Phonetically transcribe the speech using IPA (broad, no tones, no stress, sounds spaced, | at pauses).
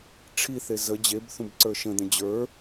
ʈ͡ʂʰ i θ e z ə d͡ʑ e b θ ũ b ǀ ə˞ ʃ ə̃ d̪ ə̃ d͡ʑ ə˞